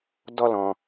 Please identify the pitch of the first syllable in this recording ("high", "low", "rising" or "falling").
high